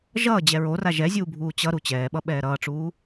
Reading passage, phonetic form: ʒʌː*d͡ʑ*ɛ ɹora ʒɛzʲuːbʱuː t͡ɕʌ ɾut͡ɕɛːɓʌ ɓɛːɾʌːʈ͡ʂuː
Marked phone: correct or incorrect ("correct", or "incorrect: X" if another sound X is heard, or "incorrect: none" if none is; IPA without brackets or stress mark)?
correct